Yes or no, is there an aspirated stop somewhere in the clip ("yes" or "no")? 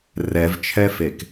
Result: yes